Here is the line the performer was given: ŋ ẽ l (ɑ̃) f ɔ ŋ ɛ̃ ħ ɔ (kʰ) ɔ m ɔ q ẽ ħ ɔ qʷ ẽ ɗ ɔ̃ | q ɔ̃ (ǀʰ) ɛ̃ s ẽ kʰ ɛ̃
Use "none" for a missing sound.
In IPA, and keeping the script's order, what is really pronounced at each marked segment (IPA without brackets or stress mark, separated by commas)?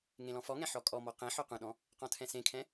ɔ̃, kʼ, tʰ